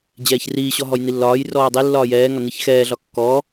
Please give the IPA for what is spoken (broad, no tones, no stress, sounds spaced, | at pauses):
d͡ʑ ɛː ç r iː ɕ ɔ ɦ ɔ j n i lː ɒː j r ɔː dˤ i lː ɒː j ɛː ŋ ɒ n i ç x ɛː ɮ ɒ kː ɔː